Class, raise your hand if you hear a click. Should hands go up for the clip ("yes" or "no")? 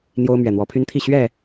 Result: no